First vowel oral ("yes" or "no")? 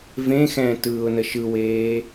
no